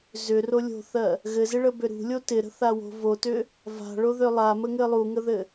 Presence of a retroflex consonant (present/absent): present